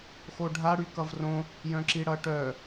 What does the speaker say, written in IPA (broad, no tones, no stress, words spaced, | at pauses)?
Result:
xoɖʱa ɽykʌvrõ | jœ̃ǁiɽʌʈœ